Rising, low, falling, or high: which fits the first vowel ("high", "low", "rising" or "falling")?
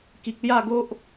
low